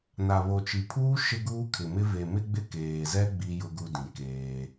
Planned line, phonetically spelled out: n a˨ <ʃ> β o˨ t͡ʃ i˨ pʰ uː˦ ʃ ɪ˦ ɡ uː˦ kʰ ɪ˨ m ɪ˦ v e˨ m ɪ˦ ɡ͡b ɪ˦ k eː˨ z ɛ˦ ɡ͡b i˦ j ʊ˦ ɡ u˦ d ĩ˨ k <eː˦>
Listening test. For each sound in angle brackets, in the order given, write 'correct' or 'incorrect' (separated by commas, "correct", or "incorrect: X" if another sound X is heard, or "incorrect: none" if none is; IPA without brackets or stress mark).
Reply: incorrect: none, correct